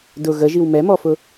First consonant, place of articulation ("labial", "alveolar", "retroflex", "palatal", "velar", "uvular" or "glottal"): alveolar